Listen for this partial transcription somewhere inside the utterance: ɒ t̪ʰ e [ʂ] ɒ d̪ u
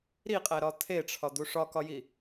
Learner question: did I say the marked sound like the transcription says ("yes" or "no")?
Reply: no